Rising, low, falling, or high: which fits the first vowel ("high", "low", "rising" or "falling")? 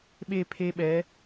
falling